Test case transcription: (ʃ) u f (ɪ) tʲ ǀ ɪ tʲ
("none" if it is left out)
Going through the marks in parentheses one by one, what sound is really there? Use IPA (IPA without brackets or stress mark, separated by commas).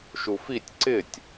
ʃ, i